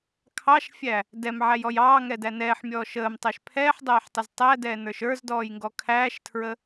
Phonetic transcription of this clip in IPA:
kʰ ɑ ʃ fʲ æ | d ɛ m ʕ æ j ɔ j ɑː ŋ ɛ d æ n ɛː ħ mʲ ɔː ʃ əː m tˤ æ ʃ pʰ ɛː ħ dˤ æː ħ tˤ ə z tˤ æ d ɛː n ə˞ ʃ ə˞ z d ɔː j ŋ ɡ ɔ kʰ æː ʃ tʰ ɹ ə

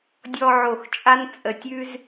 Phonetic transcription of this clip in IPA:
dʲ ɔ˧ ʕ o˧˩ x t͡ʃʼ a˥ n t͡sʼ ə˧˩ tʲ ʉ˥ z

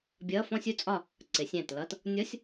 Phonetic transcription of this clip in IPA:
bʲ ʌ˧˥˧ f ɔ̃˥ sʲ u˥ t͡sʼ ɒ˥˨ | ǀ ɪ˨˩˦ sʲ æ̃˧˩ t l ʌ˧˥˧ t | nʲ ɔ˧˥˧ sʲ

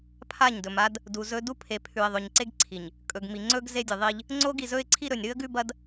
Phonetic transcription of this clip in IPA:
pʰ a˦˨ ɲ d ɵ˨ m a˦ d | d u˨ z ɵ˦ d u˦ pʰ e˨ pʰ ʉ˨ ɪ̯ ðˤ ɵ˨ ɲ ǀ e˦ ɡ ǀʰ i˨ ɲ | kʼ ɵ˨ ɡ m i˨ ŋ͡ǀ ɵ˦ ɡ z e˦ dʲ ɨ˨ ðˤ i˦ ʎ | ŋ͡ǀ o˦ ɡ i˨ z ɵ˦ ɪ̯ ǀʰ i˦ ɾ ɵ˨ nʲ ɾ ɨ˦ ə̯ ɡ ʉ˦ b ɐ˦ d

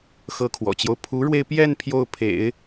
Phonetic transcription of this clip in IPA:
x ɤ˧˥ kʰ w ɔ̰˨˩ t͡ɕ j o˦ ʊ̯ pʰ u˧˥ ɻ w e˧ ɪ̯ p j ɛ˥˧ n pʰ j o˥˩ ʊ̯ pʰ ḛ˨˩˦ ɪ̯

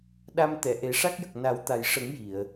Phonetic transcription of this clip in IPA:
ɗ a˧ m t̪ ɛ˨˩˨ ʔ e˨˩˦ ʂ a˦˥ k̚ j ə˨˩ k̚ n a˨˩˦ w t̪ a˨˩ j ʂ ə˨˩˦ ŋ j i˨˩˨ ə̯

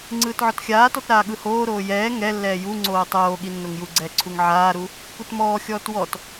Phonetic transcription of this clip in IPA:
ŋ͡ǀ ɯː t ʕ ɔ t xʲ aː t ɔ t ɾ aː ɠ ɯ h oː ɾ oː j ɛː ŋ ɛ lː ɛː j u ŋ͡ǀ oː tˤ oː ɠ i nː o ŋ j u ɡ͡ǀ ɛː ǀʰ u ŋ ʕ aː ɾ u | k u t m ɔː xʲ ɔː t w ɔ t

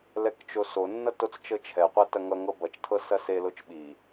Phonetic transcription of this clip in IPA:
l ɛ k t͡ʃ o s o nː ʌ t o t͡s t͡ʃ ɤ t͡ʃʰ ɛ qʷ ɜ t ɐ ŋ ʌ ŋ ɤ b ʌ t͡ʃ tʰ ɤ s ɐ s e l o t͡ʃ ɓ i

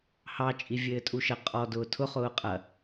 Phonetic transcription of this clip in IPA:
h ɑ t͡ʃʼ i vʲ ɘː tʼ u ʃ ɐ qʼ ɔ d ʊː tʰ ʊ χ ʊː qʼ ɐ

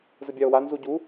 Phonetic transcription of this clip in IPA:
z ə bʲ a o̯ w a n z u ɟ u

